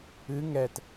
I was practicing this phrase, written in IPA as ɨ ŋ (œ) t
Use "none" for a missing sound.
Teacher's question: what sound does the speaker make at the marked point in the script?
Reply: ɛ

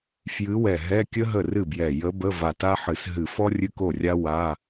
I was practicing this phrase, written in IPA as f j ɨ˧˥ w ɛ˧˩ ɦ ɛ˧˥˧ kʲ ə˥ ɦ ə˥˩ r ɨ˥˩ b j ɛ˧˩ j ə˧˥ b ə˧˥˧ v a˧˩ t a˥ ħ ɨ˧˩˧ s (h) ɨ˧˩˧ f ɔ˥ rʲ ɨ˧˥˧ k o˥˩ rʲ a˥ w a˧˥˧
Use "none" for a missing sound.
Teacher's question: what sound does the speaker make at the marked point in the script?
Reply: ɦ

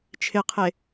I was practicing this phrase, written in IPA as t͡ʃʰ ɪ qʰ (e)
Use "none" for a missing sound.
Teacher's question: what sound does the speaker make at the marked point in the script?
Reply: e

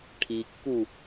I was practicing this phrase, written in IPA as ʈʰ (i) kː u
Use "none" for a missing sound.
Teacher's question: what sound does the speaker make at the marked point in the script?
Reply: i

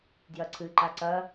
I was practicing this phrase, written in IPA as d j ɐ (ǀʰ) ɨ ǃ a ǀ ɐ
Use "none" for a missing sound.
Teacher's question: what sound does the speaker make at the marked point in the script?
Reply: ǀʰ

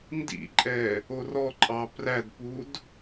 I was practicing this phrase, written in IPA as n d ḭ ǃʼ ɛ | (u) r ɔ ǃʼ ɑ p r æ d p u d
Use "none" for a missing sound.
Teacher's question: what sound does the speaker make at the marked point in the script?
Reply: o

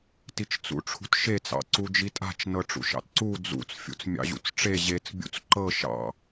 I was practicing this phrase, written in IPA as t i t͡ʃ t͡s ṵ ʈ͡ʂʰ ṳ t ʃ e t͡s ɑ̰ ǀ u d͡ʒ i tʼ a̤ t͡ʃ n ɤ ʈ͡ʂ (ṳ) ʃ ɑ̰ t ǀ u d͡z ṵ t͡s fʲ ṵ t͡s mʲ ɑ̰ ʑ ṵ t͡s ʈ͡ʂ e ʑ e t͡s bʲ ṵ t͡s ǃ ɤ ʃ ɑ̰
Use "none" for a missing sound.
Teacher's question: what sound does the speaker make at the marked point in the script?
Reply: ṵ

